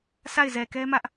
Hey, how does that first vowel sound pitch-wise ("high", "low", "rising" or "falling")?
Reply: falling